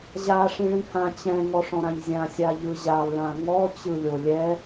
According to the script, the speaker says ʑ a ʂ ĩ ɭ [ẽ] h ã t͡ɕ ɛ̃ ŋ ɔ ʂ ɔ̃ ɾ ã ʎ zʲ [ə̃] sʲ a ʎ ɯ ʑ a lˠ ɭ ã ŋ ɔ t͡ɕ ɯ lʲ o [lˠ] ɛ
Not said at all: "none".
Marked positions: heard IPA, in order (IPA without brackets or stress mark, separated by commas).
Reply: ĩ, ã, lʲ